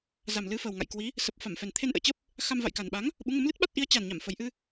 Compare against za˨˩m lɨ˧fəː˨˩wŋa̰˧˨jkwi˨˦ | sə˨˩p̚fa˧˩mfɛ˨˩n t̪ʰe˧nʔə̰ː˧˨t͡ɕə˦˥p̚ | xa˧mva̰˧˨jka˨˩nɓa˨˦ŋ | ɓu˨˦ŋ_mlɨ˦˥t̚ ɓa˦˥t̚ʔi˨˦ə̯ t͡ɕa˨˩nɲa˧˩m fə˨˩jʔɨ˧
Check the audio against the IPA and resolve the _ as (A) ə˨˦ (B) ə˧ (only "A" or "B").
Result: A